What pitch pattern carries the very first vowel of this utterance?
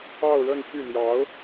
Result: falling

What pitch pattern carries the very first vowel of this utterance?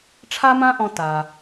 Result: high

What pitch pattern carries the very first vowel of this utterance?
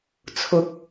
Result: low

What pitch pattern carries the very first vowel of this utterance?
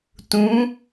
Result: rising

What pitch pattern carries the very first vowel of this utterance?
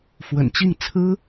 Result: low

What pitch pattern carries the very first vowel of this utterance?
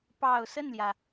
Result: low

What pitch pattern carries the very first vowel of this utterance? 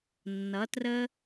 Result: rising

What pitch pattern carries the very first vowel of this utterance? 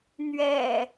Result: low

